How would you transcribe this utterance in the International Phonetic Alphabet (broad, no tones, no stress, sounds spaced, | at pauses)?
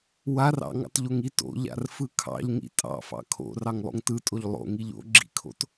w a r ɑ̰ ŋ ɑ̰ t ʎ o ŋ i t o̰ ʎ a̰ r f ɯ kʰ ɑ̰ ʎ ŋ ḭ tʼ ɑ̰ f ɑ̰ kʰ o̰ r ɑ ŋ lˠ o̰ ŋ t ɯ tʼ o ʎ lˠ o̰ ŋ i ʎ o̰ ɡ͡ǁ ḭ kʰ o̰ t